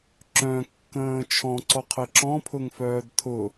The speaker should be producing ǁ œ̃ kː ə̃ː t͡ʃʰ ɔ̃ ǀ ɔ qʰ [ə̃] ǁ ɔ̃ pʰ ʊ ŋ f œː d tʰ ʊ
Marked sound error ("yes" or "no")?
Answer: yes